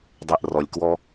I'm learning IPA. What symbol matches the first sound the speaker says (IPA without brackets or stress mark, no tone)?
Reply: dˤ